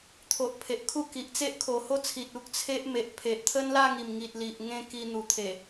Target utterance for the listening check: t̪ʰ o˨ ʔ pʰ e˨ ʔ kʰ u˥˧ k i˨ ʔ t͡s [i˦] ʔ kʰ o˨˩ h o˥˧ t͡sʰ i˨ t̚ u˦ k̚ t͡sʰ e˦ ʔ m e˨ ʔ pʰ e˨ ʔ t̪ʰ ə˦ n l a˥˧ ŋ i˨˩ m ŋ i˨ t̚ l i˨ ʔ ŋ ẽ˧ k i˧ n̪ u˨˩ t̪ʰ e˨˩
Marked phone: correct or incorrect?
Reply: incorrect